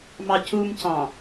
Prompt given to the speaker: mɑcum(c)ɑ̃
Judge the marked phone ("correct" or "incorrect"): correct